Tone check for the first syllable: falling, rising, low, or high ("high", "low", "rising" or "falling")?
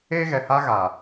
high